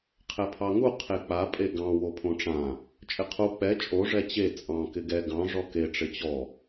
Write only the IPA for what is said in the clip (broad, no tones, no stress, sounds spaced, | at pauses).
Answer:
qʰ ɛ pʰ ɑ ŋ u qʰ e k͡p a pʼ e ɡ ɑ̃ w o pʰ õ ʈ͡ʂ ã | t͡ʃʼ ɪ qʰ u k͡p ɛ t͡ʃʼ o ʐ ɛ t͡ɕ e t͡sʼ ɑ̃ k ɪ ɡ ɛ ɡ ɑ̃ ʐ ɔ k e ʈ͡ʂ ɪ t͡ɕ ɔ